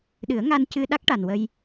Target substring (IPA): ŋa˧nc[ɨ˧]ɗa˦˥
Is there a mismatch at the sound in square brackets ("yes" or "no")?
no